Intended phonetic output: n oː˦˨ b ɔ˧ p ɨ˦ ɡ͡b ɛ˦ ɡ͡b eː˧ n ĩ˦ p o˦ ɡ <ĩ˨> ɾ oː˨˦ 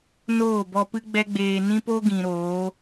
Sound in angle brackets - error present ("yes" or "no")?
no